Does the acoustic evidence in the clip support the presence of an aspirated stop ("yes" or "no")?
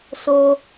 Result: no